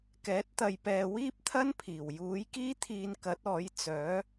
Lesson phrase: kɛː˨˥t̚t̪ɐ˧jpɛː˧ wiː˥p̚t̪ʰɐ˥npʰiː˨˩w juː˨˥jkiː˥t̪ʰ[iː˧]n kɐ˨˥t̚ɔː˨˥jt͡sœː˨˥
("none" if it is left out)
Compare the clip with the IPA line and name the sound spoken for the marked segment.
iː˧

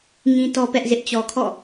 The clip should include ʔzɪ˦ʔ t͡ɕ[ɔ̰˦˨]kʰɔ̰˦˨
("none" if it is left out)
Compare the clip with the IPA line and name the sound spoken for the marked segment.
ɔ˨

